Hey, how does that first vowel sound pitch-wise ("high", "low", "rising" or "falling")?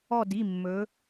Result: falling